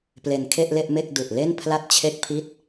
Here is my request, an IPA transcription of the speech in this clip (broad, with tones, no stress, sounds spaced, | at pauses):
p l e˧ n kʰ e˥˩ ʔ l e˥˩ ʔ m e˥˩ k̚ d u˨˩ ʔ l e˥˩ n pʰ l a˥˩ t̚ t͡ɕʰ e˥˩ k̚ pʰ i˥˩ t̚